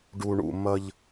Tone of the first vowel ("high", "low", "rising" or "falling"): low